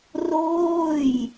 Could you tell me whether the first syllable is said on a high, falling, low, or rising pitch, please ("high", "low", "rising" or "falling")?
falling